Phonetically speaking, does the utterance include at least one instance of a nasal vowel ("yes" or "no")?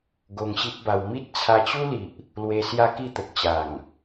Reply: no